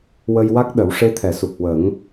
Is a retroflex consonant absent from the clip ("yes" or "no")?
no